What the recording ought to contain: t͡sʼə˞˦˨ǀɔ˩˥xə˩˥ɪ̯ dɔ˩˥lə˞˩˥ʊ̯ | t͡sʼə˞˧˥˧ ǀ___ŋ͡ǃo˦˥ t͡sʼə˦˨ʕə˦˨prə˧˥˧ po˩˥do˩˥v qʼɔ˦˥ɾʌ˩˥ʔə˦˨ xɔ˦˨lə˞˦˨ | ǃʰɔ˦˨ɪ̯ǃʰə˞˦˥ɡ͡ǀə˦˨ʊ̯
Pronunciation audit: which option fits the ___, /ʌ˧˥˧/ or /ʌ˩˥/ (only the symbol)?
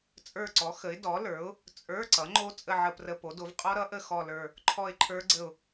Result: ʌ˩˥